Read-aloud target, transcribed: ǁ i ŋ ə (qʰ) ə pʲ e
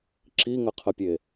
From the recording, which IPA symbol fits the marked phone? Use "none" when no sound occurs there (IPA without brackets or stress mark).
qʰ